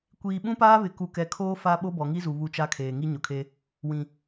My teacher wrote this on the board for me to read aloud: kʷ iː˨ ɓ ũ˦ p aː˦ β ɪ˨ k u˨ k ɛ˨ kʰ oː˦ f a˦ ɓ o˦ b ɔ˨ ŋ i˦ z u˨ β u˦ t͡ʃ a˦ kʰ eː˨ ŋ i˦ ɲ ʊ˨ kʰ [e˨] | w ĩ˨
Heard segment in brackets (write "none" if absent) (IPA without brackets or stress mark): e˦